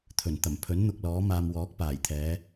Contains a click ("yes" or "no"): no